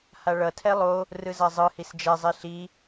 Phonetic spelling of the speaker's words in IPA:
h a ɭ ʌ tʰ ɛ lˠ o | r ɯ z a zˤ ɯ h i s d͡ʒ ɛ zˤ i ɬ i

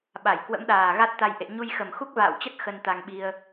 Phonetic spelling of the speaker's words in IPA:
ɓ a˧˩ j k w ə̰˧˥ m ɗ aː˨˩ ɣ a˦˥ t̚ t̪ a˧ j ʔ ḛ˧˨ ɲ u˧ j x ə˨˩ m x u˦˥ k̚ v a̰ː˧˨ w t͡ɕ ə˦˥ t̚ x ə˧ n t̪ a˧ ŋ ɓ i˧ ə̯

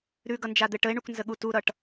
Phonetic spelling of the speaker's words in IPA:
ɾ ʉ ɡ ʌ n d͡ʒ a d̪ ɘ ʈ ə e̯ ɳ u k n z ə ɠ u t u ɾ ʌ ʈ

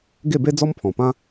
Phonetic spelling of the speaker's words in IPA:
ɡ e˥˧ b e˦ d͡z ɔ˦ m pʰ ɔ̃˨˩ p ã˦

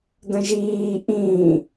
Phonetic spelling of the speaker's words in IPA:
d ə̃ ʒ iː ʔ ĩː

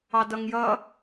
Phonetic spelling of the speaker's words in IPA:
ɑ d ʌ ŋ j ʌ

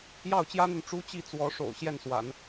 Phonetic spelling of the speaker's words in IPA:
j ɑ˥˩ ʊ̯ t͡ɕ j ä˥ n̪ y˨ n ʈ͡ʂ u˥ t͡ɕ i˥˩ t͡s w ɔ˧˥ ʂ o̰˨˩ ʊ̯ ɕ j ɛ˥˩ n s w a̰˨˩˦ n

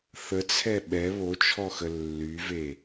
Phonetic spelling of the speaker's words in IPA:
θ ə t͡sʰ ɛ ɓ ɛ β o t͡ʃʰ ɔ x ə lː y v e

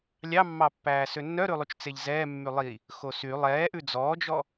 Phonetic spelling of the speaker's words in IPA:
lʲ ɑ mː ɑ pː æː s ø nː œ ɾ ʉ lˠ y t͡ʃ t͡s e ʎ z ɛː mː y lˠ i | x o s y lˠ ɛː ʔ ʉ d͡z ɔː d͡ʒ ɔ

